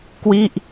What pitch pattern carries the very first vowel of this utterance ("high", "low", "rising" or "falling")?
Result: falling